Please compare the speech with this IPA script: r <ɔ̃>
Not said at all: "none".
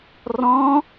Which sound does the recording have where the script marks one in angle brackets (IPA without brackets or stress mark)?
ɔ̃